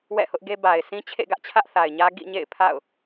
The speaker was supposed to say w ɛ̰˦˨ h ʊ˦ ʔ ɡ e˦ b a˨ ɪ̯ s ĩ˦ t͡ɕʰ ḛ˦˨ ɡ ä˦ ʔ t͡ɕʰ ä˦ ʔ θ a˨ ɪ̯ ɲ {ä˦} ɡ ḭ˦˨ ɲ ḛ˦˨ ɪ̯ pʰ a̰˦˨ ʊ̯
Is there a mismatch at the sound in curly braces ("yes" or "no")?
no